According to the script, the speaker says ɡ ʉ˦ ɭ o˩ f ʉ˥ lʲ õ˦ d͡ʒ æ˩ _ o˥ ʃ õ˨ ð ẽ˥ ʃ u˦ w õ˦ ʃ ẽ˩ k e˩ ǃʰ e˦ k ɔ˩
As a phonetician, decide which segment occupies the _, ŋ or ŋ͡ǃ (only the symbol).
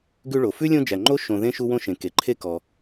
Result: ŋ͡ǃ